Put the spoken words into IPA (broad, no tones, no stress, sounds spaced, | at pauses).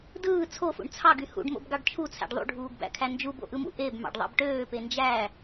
d ɯː t͡sʰ o f ṵ ɳ t͡sʰ ɑ ɡ y h ṵ ɖ m o̰ b ɡ ɑ ɖ t͡ʃʰ u t͡sʰ æ̰ ɖ ðˤ ṵ ɖʱ uː ɡ b æ̰ kʰ æ n d͡ʒ u b o̰ ʔ ɯ m ṵ ʔ e b m ɑ̰ ɖ ðˤ ɑ̰ b ʈ øː p e n d͡ʒ æ